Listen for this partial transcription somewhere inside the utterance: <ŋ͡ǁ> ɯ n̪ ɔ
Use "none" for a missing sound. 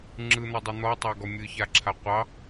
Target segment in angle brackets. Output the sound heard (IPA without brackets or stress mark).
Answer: ŋ͡ǁ